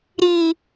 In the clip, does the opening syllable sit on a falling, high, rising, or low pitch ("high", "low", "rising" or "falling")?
low